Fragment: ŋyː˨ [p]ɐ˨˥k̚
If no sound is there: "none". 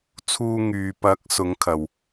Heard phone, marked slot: p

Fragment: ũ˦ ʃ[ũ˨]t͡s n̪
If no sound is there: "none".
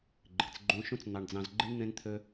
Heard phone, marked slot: ũ˦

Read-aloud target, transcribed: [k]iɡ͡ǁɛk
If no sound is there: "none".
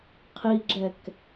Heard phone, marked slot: qʰ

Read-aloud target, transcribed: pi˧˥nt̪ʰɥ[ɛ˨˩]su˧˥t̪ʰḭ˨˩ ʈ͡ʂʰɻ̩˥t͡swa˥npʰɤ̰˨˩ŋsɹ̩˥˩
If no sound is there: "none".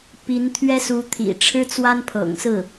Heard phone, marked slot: ɛ˥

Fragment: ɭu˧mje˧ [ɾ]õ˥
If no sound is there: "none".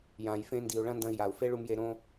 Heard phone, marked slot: ɾ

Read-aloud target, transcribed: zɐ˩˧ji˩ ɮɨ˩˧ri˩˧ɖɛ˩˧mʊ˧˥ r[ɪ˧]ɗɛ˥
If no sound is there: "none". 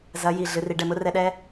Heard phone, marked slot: ɛ˧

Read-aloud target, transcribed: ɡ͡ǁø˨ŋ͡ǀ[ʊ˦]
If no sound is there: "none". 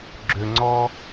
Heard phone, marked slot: ɔ˦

